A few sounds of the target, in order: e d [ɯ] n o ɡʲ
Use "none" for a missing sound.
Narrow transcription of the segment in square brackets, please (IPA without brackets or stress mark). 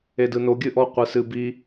ɯ